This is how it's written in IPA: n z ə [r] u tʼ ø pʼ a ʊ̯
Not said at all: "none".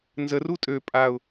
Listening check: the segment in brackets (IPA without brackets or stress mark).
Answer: r